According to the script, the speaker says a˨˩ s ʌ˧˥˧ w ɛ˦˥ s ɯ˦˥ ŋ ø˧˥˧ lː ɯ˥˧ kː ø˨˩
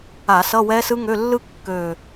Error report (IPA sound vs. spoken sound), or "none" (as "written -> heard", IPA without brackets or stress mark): a˨˩ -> a˧˩˧